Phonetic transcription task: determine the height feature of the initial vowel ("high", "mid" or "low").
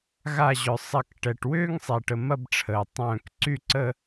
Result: low